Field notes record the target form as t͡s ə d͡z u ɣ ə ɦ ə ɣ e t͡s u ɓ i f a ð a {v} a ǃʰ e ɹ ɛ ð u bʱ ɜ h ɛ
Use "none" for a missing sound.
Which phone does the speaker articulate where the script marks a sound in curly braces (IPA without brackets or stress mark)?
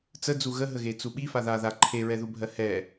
ð